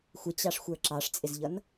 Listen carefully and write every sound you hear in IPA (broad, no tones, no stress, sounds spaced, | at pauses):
xʷ ɪ t͡ɕ ɑ ʂ xʷ ə˞ ǁ ɑ ʂ t͡sʼ ɪ z ʎ ʌ n